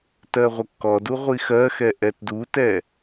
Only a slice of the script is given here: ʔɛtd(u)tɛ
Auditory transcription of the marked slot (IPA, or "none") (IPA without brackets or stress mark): u